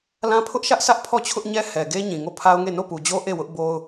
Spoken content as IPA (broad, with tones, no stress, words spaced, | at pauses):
lã˦ pʰʊ˦ʔ ʃä˦ʔsʰä˦ʔ pʰɔ˦˨t͡ɕʰʊ˦ʔɲɛ˦ hɛ˨ɡe˦ ɲĩ˨ŋo˦˨pʰa˦ʊ̯ŋe˦˨ no˦˨pu˨d͡ʑo˦ ʔe˦˨wʊ˦ʔ bo˦ʊ̯